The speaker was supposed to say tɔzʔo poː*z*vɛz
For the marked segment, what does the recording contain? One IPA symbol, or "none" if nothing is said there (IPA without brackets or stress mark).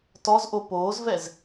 z